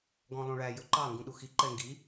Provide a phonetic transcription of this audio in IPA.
ɡ ɔ̃ lˠ ũ ɭ æ j ɵ ǃ ɑ ŋ ɡ ũ ɗ u x i ǃ ɛ ŋ ɡ i

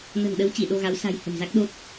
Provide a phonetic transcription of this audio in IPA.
n ə̤˨˩ n ɗ ə˨˦ w t͡ɕ i˧˩ ɗ o˧ ɣ a˨˦ w s a̤˨˩ j h ə̤˨˩ m z a˦˥ k̚ ɗ o˦˥ t̚

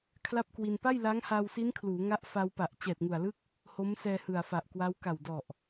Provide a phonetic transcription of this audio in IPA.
kʰ l a˥˩ p̚ k w i˧ n p a˥˩ j l a˦˥ ŋ h a˧ w s i˦˥ n kʰ l uː˩˦ ŋ a˦˥ ʔ f a˧ w p a˨˩ ʔ t͡ɕ ɛː˨˩ t̚ ŋ u˨˩ a̯ l ɯ˥˩ k̚ | h o˦˥ m s ɛː˧ h ɯ˨˩ a̯ f a˨˩ ʔ k w a˦˥ w k a˨˩ w d ɔ˨˩ ʔ

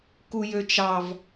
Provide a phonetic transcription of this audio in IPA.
k u j ø t͡ʃ ɑ v

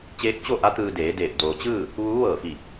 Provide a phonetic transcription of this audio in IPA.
t͡ɕ eː˧˥ k̚ t͡ɕ o˥˨ ʔ a˧˥ t̪ ɯː˧ d eː˩˧ d eː˧˩ p̚ d oː˩ t͡ɕ ɯː˥˨ | ʋ uː˧˥ ʋ ɤː˧˩ f i˧˩

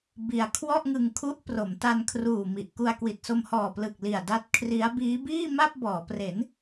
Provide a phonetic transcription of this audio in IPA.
b i˧ a̯ kʰ w ɔ˥˩ ʔ ŋ ɯ˧ ŋ kʰ u˦˥ ʔ p r o˩˦ m t a˧ n kʰ r uː˨˩ m i˨˩ ʔ k u˧ a̯ k w i˨˩ t̚ s o˧ m h ɔː˨˩ p l ɯ˨˩ k̚ l i˨˩ a̯ d a˦˥ t̚ kʰ r i˦˥ a̯ b iː˦˥ b iː˥˩ m a˥˩ p̚ b ɔː˩˦ p r e˩˦ n

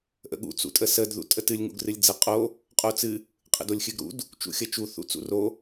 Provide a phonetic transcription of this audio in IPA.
ʔ ə̰ ɠ ṵ t͡s ṵ tʼ ə s ə d ð ṵ tʼ ə t ɨ lʲ ŋ ṵ ɡ r ɨ lʲ d͡z ə qʼ o | qʼ o t͡s ɨ | qʼ ə̰ d o lʲ xʲ ɨ ɡ ɾ ṵ d | t͡ʃ ṵ xʲ ə t͡ʃ u θ ṵ t͡s ṵ r o

